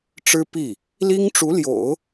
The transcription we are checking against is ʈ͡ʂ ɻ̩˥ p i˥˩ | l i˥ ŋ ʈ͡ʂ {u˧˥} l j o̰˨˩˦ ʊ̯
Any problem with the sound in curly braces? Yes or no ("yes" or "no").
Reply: no